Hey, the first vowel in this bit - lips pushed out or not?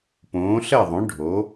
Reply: yes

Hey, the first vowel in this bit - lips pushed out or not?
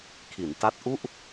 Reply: no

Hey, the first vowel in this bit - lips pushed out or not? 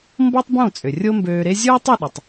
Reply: yes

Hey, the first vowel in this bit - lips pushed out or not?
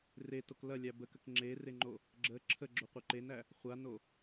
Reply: no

